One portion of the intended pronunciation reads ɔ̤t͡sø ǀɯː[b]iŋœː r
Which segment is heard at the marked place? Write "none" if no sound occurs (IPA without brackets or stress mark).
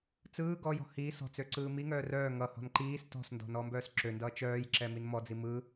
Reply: m